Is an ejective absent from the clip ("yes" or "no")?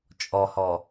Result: no